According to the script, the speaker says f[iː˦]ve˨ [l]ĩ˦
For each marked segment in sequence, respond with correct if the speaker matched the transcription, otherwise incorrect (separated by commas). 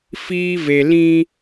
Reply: correct, correct